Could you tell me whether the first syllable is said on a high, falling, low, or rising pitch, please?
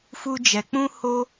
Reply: high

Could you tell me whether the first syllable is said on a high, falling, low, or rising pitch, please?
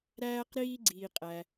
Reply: high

